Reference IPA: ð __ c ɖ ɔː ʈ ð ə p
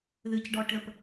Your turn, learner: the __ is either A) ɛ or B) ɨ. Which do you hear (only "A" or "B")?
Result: B